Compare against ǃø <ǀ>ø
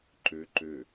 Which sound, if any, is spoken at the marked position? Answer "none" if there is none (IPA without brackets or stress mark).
ǃ